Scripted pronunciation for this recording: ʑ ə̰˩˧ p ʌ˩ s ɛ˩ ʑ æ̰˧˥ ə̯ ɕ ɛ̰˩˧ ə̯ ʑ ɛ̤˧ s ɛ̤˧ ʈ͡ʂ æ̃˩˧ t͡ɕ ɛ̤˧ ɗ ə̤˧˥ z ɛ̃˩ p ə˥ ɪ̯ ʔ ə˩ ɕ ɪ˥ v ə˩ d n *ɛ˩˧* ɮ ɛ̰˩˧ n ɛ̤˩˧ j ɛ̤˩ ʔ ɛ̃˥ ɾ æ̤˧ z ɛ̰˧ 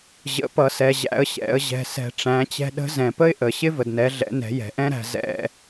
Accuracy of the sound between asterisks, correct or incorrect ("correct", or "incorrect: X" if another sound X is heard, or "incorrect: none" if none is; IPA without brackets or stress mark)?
correct